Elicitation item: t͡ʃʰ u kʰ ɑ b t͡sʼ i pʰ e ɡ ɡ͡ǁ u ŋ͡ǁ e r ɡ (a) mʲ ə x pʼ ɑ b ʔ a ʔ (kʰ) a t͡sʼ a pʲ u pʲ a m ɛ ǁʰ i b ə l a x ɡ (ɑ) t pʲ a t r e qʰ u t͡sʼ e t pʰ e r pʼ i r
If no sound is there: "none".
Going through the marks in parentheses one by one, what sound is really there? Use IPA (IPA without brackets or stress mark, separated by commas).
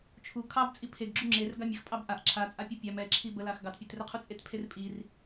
a, ǁʰ, ɑ